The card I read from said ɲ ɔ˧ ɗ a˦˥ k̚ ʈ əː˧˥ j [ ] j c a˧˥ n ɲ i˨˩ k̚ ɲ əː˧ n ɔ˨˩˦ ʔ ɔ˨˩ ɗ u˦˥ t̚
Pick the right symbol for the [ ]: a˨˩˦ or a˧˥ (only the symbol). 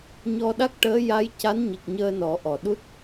a˧˥